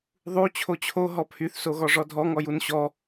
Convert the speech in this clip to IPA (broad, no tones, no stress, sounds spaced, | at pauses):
ðˤ u t͡ɕʰ o t͡ɕʰ o ɦ ɔ pʰ y θ s o ɣ ɔ ʐ ɔ dʱ ɔ ŋ ɔ j u n ɕ ɔ